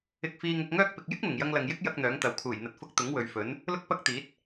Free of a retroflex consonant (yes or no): yes